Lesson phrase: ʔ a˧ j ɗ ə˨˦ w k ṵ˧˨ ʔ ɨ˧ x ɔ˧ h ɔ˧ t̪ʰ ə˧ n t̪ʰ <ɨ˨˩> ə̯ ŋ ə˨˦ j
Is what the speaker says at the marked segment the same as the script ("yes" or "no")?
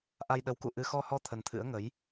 no